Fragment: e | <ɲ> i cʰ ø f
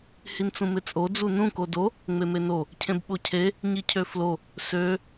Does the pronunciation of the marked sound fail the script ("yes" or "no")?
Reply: no